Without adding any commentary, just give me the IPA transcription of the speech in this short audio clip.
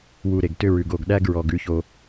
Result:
w u˨ ɾ e˨ ɡ t ʏ˦ ɹ ʉ˨ ɡ o˦˨ ɡ ɗ æ˦ ɡ ɹ ɔ˨ ɡ ʉ˦ ç o˦

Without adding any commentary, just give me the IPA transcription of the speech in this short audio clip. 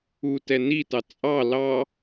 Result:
u t ɛ n i t ɑ t͡sʼ ɑ l ɑ

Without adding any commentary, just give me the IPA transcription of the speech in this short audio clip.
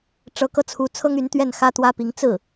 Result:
ʈ͡ʂ ɤ˧˥ k ɤ˧ t͡sʰ u˧˥ t͡sʰ ɤ˥ ŋ y˧˥ n t̪ ɥ ɛ˥˩ n x ä˥ t̪ w ä˥ p i˧˥ ŋ t͡s ɹ̩˥˩

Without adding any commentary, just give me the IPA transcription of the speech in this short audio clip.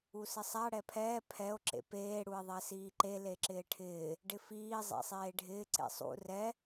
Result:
u s ɪ sˤ a ɽ ɛ pʰ ɛː pʰ ɛ o̯ ǁ ḛ p eː ɽ u e̯ ðˤ ɛ s iː ǃ e l e ǁ ɪː ʈʰ ɪː | ɖ ɪ f iː zˤ ḛ sˤ eː ɖʱ ɪː ǀ ḛ sˤ ṵ r ɛ

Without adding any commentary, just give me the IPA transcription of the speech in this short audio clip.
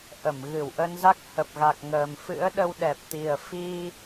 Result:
ʔ ə˧˩ m ɣ ɨ˧˩ w ʔ ə˧ n z a˦˥ k̚ h ə˨˩ p̚ ɣ a˨˩ k̚ ŋ əː˨˩ m f ɨ̰˧˥ ə̯ ɗ ə˧ w ɗ ɛ˨˩ p̚ t̪ i˨˩ ə̯ f i˧

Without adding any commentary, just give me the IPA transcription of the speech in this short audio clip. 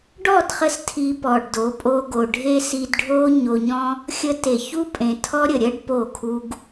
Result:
ɖ ɔ˦˨ d χ ə˧ s tʰ i˧ p ɔ˨ ɖ d o˨˦ pʼ o˧ ɡ o˨ ɖʱ e˦ s i˧ d ɖʱ o˦ ɲ o˧ ɲ ɔ̃˦ | xʲ ə˧ t e˨ ç u˦ pʼ ẽ˨ tʰ ɔ˦ ɾʲ ə˨ ɾʲ ɜ˦ ɖ p o˦˨ kʰ u˦ ɡ

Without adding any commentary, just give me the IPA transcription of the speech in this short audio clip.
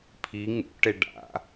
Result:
pʰ i ŋ ṵ ʈ e ɖ a̰

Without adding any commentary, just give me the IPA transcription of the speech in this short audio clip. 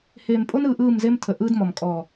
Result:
h eː˨ m pʼ o˦ n ɯː˨ ʔ ɯː˦˨ m z e˦ m tʰ ə˨ ʔ ɯː˦ d m ɔ˨ m kʼ ɔː˨

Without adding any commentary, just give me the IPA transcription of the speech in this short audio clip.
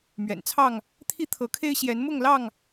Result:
m ɥ ɛ̰˨˩ n t͡sʰ ɑ˥˨ ŋ | t̪ʰ i˦ t̪ʰ ɤ˨˦ kʰ e˦ ɪ̯ ɕ j ɛ˨˦ n m ʊ˥˨ ŋ l ɑ˥˨ ŋ

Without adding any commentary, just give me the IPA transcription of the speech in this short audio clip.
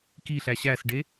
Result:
k i ɬ æ ɕ æ s ɖ e

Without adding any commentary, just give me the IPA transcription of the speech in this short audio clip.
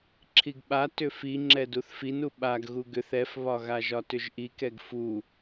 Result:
ǁʰ i ɡ ɓ a t ʏ f i ŋ͡ǁ ɛ d u θ f i n u ɓ a ɡ ɣ u ɡ ʏ θ ɛ f β ɒ ɣ a ʒ ɒ t ʏ ʒ ʔ i k ɛ ɡ f u

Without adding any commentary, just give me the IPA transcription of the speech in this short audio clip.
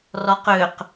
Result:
r ɔ q ø q

